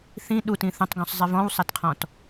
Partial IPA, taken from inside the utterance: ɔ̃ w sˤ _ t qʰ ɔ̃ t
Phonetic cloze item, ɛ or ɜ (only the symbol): ɛ